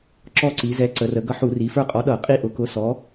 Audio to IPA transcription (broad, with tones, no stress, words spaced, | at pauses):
ǁɔ˦ǀi˩˧zɛ˨˥ ǀə˩˧rə˩˧ɡʌ˦ ħu˧˩˧ri˩˧fə˞˦qʼɔ˨˥ ɗʌ˧˩˧qʼi˦ʔʊ˩˧ kʊ˨˥sɔ˨˥